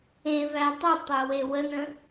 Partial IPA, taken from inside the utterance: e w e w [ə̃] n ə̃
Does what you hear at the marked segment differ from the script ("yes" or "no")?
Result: yes